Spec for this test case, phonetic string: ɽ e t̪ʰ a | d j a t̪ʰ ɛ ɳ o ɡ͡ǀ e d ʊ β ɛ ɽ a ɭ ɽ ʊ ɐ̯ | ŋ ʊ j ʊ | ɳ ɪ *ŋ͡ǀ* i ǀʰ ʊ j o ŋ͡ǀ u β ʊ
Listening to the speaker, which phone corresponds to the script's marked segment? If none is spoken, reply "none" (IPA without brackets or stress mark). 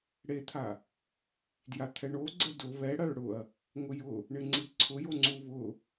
ŋ͡ǀ